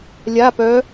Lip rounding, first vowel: unrounded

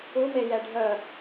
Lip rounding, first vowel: rounded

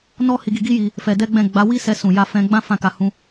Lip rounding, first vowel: rounded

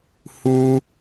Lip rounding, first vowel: rounded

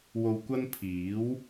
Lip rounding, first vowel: rounded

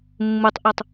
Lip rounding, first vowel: rounded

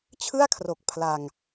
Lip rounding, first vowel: unrounded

